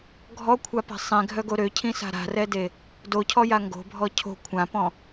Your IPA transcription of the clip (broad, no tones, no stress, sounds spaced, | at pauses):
ɡʱ ɔ kʷʰ a p a̤ sˤ ẽ ɡʱ œ ɡ o ɾ ø cʰ ĩ s a̤ ɾ a̤ r ɛ d e | d o cʰ ɔ j a ŋ ɡ o̤ bʱ ɔ cʰ o̤ kʷʰ ã p ɔ̃